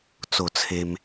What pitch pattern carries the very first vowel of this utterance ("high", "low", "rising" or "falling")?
falling